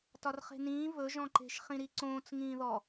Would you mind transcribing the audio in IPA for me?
t ɒ r χ e̤ n ĩː v ɵ ʒ ɔ̃ ǃ e̤ ʃ χ ĩ ɾ i ǀ õː t͡s ŋ ĩː ð ɔ

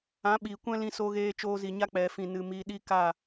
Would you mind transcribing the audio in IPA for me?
ã˨˦ ɓ iː˨ kʷ ɛ̃˦ l ĩ˧ s o˧ ɣ eː˧ t͡ʃ oː˧ z i˨ ɲ a˧ k͡p ɛ˨ f ĩ˨ n ɨ˨ m iː˨ ɗ i˧ k a˦˨

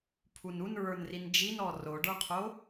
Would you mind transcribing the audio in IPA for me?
pʰ u n u n ɹ ə˞ n r i n d͡ʒ i n ɔ r o ɖ ə˞ qʰ o

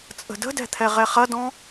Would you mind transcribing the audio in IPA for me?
t͡sʼ ə̤ d ə̤ d ɛ̤ t̪ʰ ɛ ʁ ɛ χ ɐ d ɔ̃

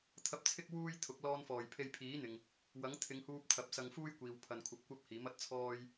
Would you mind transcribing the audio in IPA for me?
t̪ʰ ɐ˧ p̚ t͡sʰ ɪ˥ k̚ w uː˥ j t̪ʰ ʊ˨˥ k̚ l ɔː˧ n f ɔː˨˩ j pʰ e˧ j pʰ iː˨˥ n̪ ɪ˨ ŋ | w ɐ˨˥ ŋ t̪ʰ ɪ˨˧ ŋ h uː˧ p̚ t̪ʰ ɐ˨ p̚ s ɐ˧ ŋ f uː˥ j kʷ iː˨ w pʰ ɐ˨ n kʷʰ ɐ˧ p̚ kʷ ɐ˥ p̚ h iː˨˥ m ɐ˧ t̚ t͡sʰ ɔː˥ j

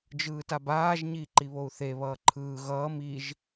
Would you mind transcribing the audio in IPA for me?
d͡ʒ ɯː t a b aː ʒ ɲ iː ǃ i β o u̯ θ e β ʌː ǃʰ ɯː ɣ ʌː m i ʒ

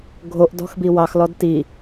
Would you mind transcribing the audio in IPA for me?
ɡʱ o ʔ d ɔ̤ x b i w ɑ x l ɔ d t i

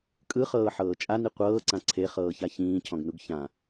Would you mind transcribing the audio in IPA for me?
kʼ ɯ χ ɤː ħ ɤː t͡ʃʼ a n i qʷ ɤː ǀ ã ǀʰ e χ ɤː ç a ç ĩː cʰ ɔ̃ ɡ n u ɡ ç ã

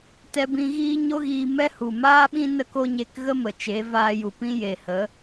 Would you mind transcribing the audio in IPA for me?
t ɛ˧ b ĩ˧ ɣ iː˦ ɲ o˦ ɣ iː˧ m ɛ˦ h u˨ m aː˦ ɓ ĩ˦ n ə˦ k o˦ ɲ e˧ k ɣ ə˦ m ə˨ t͡ʃ e˨˦ v aː˧ j u˨ p ĩ˦ j e˨ h ə˨˦

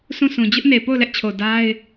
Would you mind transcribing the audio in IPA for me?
s ũ˦˨ sʰ ũ˨ d͡ʑ ʊ˦ ʔ n e˨ p o˦˨ ʊ̯ l ɛ˦ ʔ t͡ɕʰ o˨ d a˦ ɪ̯

